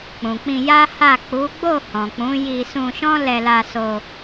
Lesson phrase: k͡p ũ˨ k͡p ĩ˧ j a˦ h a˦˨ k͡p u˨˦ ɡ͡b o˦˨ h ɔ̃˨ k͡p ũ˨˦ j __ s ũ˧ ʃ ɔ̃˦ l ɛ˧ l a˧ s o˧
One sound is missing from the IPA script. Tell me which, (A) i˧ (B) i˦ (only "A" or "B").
A